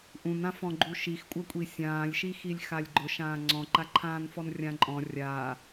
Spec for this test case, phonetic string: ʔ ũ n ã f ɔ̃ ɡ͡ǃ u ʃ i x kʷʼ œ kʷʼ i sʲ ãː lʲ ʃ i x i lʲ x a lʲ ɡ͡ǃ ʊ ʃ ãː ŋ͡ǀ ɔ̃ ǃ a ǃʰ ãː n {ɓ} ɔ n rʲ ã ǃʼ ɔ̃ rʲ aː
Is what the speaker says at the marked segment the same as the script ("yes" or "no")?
no